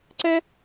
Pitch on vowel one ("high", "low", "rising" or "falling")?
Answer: high